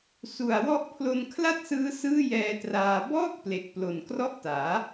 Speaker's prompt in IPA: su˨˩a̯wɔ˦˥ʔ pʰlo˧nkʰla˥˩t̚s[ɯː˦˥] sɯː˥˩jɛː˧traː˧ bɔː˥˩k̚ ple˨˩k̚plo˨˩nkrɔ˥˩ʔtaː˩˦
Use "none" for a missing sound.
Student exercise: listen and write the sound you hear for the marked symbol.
ɯː˦˥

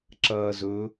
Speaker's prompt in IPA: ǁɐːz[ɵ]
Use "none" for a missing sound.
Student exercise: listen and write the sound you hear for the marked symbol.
ɵ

